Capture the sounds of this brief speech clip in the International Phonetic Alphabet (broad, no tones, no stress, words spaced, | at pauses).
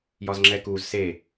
jɒzŋ͡ǁɛkuz se